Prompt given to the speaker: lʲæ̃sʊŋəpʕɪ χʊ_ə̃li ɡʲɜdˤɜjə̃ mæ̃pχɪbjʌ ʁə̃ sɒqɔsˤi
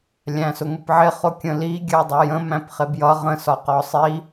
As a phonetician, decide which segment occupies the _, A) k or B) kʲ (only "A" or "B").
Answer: B